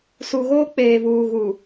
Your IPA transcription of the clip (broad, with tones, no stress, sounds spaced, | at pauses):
s u˨ ɣ oː˦ k͡p eː˨ v uː˨ ɣ u˨